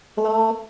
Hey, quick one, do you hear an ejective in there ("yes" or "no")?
no